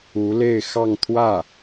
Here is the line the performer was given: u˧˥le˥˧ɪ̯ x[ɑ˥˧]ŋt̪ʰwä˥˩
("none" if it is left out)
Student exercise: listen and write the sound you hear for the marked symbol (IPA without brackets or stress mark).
ɑ˥˧